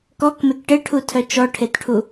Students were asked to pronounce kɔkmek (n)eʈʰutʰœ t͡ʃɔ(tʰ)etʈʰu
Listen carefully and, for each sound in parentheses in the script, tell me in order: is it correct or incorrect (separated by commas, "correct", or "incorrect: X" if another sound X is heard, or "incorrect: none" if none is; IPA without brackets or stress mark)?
incorrect: ʈ, incorrect: ʈʰ